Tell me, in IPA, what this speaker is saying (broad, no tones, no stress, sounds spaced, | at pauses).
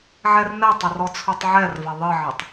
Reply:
ʕ ɛ r n ɛ tˤ ɐ r ɔ t͡sʰ u tˤ ʕ ɛ r v ɐ ðˤ ɨ ʕ ɘ tˤ